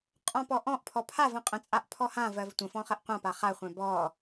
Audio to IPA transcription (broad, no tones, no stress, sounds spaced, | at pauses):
qʼ ɔ̃ p ɔ ʔ ɔ̃ ʔ pʰ ɔ pʰ a v ə̃ qʼ ə̃ t͡sʼ a ʔ pʰ ɔ h ã v ɜ v tʷ ə̃ f ɔ̃ χ ɜ ʔ qʷ ã p a χ a χʷ ɛ̃ b ɔ